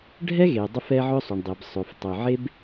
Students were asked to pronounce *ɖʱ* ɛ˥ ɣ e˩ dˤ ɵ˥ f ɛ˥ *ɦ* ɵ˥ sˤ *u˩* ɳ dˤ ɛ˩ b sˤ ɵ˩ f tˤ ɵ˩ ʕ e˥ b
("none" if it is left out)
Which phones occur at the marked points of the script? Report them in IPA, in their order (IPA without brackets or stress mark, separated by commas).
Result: ɖʱ, ʕ, u˩